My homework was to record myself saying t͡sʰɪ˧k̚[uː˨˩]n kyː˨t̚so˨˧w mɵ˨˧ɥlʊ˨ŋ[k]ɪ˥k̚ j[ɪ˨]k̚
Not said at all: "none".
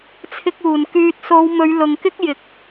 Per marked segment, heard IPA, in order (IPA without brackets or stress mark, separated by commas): uː˨˩, k, ɪ˨